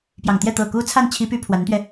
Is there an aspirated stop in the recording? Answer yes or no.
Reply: yes